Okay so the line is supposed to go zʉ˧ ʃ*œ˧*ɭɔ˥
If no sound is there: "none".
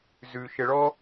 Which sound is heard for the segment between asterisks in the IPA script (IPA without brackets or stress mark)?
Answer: ə˧